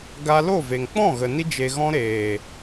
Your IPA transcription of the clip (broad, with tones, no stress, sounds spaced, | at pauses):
ɡ a˧ l o˦˨ v e˨ ŋ k͡p ɔ̃˦˨ ɣ ə˨ n i˧ d͡ʒ e˨ ɣ ɔ̃˧ ɾ eː˨